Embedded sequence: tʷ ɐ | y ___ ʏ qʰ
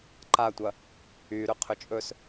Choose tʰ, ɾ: ɾ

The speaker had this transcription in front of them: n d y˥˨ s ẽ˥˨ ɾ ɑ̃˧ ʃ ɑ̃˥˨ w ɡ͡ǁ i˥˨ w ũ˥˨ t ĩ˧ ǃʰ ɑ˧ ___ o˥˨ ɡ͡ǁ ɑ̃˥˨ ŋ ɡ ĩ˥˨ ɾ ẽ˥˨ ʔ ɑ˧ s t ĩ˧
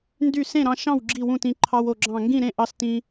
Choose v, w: w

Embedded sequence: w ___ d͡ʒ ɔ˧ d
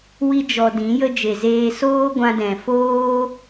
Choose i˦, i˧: i˦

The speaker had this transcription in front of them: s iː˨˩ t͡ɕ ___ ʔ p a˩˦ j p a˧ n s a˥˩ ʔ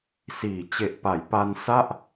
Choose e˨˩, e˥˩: e˨˩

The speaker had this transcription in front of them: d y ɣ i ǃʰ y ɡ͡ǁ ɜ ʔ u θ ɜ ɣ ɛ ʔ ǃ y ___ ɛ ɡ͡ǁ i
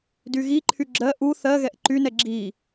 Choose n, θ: n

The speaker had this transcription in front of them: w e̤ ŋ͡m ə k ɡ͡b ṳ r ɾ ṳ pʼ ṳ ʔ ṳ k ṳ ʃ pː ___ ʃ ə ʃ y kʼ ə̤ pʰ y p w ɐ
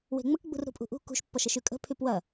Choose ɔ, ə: ɔ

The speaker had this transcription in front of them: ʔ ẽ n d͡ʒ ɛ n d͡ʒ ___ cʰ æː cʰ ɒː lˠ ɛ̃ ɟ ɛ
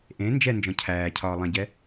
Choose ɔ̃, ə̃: ɔ̃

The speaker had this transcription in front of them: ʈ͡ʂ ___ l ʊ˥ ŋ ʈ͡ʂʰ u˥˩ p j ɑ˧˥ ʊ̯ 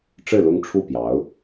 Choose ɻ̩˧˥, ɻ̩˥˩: ɻ̩˥˩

